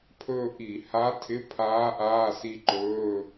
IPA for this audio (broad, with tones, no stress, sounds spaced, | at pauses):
pʰ ɵː˦˨ ʔ i˧˩˧ h a˧˥ tʰ ɪ˧˥˧ pʰ aː˧˥ ʔ aː˧˥˧ s i˦˨ ǃ ɵː˧˥˧